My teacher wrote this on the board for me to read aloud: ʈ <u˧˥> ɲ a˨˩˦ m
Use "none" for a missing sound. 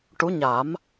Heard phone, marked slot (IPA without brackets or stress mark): u˧˥